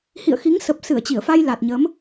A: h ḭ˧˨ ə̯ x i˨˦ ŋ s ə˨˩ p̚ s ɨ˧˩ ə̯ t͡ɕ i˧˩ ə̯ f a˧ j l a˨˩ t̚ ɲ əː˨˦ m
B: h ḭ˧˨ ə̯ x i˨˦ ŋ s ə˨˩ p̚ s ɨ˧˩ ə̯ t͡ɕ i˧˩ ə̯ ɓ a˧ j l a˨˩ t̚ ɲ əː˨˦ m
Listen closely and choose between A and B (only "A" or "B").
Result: A